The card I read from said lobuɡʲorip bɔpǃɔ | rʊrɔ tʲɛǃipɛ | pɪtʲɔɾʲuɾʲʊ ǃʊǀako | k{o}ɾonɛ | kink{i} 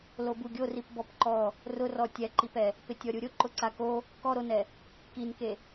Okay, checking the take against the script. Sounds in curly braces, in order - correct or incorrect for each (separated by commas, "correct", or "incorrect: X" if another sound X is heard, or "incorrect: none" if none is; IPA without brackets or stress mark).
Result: incorrect: ɔ, incorrect: e